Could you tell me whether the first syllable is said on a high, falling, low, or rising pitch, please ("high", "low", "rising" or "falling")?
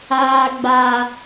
high